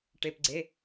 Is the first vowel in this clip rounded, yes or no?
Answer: no